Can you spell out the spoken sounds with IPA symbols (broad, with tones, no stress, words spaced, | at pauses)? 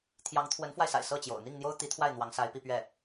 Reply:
t̪ʰjɑ˧˥ŋ t̪ʰwə˧˥nfwa˧ɪ̯sa̰˨˩ɪ̯ sɤ˥˩t͡ɕjo̰˨˩ʊ̯ n̪i˥˩ŋn̪jo˥ʊ̯t̪i˧˥t̪ʰwa˥˩ɪ̯ n̪wɑ˧˥ŋsa˧˥ɪ̯pi˥˧ pɥɛ˥˩